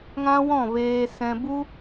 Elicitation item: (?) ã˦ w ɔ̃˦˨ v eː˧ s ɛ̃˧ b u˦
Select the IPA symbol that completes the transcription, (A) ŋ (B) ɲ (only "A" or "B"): A